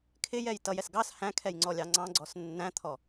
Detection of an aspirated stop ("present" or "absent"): present